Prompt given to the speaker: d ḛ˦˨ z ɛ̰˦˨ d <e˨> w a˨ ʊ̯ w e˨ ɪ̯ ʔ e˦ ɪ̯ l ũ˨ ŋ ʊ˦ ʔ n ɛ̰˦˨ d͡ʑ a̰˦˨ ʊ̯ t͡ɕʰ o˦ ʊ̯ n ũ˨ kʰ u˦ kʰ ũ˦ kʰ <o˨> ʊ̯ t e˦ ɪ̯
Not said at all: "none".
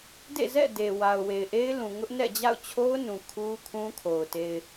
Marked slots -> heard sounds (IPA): e˨, o˨

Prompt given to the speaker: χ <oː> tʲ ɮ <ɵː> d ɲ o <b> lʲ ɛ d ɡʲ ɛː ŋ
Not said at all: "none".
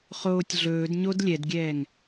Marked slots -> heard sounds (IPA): oː, ɵː, d

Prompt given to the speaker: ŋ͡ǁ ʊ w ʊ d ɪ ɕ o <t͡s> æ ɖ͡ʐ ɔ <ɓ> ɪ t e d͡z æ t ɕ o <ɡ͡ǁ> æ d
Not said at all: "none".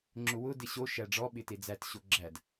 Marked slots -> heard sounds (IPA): ʃ, ɓ, ɡ͡ǁ

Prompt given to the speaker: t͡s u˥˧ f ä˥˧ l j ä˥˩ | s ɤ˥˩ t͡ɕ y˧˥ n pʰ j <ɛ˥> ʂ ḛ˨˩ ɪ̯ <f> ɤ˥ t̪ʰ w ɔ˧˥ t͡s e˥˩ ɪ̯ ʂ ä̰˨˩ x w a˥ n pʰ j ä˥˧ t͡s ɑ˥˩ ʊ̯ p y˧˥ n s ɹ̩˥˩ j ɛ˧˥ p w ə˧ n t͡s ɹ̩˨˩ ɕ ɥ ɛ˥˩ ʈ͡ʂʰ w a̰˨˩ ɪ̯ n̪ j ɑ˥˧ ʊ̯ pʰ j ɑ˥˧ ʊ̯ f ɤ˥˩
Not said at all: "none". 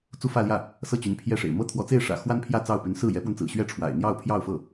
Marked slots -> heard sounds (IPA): ɛ˥˩, m

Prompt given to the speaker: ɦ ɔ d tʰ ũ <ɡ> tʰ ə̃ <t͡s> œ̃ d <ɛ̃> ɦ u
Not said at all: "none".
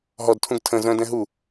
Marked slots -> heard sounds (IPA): ɡ, z, ɛ̃

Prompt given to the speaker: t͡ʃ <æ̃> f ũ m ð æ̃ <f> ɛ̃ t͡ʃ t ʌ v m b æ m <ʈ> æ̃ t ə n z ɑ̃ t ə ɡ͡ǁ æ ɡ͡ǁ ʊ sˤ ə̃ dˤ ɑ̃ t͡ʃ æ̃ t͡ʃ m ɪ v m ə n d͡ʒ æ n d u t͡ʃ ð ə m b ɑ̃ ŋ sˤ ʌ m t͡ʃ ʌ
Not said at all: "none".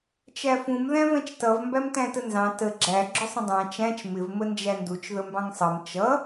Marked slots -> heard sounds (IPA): æ, v, t

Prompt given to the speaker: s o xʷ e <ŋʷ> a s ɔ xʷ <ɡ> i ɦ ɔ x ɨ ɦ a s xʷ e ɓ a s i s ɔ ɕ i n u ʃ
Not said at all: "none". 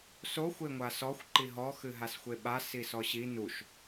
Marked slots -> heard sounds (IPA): ŋʷ, ǃ

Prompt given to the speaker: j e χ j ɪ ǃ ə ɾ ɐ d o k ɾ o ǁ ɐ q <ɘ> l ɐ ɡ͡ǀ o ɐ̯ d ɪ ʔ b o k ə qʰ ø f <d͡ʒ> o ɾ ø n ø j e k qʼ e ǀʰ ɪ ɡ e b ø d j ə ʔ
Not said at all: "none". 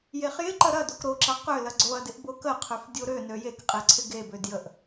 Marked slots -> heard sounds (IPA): ø, dʲ

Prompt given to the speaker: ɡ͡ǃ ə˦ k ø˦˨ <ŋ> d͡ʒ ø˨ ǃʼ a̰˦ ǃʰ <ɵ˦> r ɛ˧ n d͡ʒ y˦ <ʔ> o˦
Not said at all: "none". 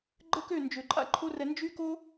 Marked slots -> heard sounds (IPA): n, o˦, k

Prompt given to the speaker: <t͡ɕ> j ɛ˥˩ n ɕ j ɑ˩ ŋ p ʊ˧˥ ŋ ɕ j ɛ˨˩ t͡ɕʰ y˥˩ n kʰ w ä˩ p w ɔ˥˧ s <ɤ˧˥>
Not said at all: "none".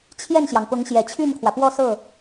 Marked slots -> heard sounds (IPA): t͡ɕʰ, ɤ˥˩

